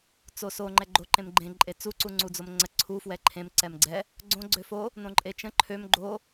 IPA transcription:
t͡soso ŋ͡ǃɛɡ͡ǃo ǃẽmɡ͡ǃẽ ǃʼet͡su ǀuŋ͡ǀud͡zomŋ͡ǀə ǀʰu fwɛǃʰẽm ǀɛmɡ͡ǀɛ | ɡ͡ǀõ ɡ͡ǀøfo | nõǃʼet͡ʃə̃ ǃʰøm ɡ͡ǃo

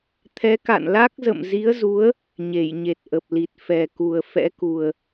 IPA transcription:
t̪ʰɛ˨˦ka̰˧˨nla˦˥k̚ zə̰˧˨mzi˨˦ə̯zu˨˦ə̯ | ɲe˧˩jɲe˨˩t̚ʔə˨˩p̚li˨˩t̚ fɛ˨˩ku˨˩ə̯ fɛ̰˧˥ku˨˩ə̯

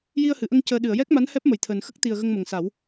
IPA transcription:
ji˧ə̯hɨ˨˩˨ʔə˧ŋ cəː˧ ɗɨ˨˩˨ə̯jɛ˦˥k̚ma˧˥n hɛ˦˥p̚mə˨˩˨jt̪ʰəː˨˩nxə˦˥k̚ t̪i˨˩ə̯ ɣə˧ŋmə˨˩ŋsa˨˩˦w

